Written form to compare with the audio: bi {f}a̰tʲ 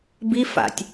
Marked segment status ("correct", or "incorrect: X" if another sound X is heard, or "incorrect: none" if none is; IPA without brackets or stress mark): correct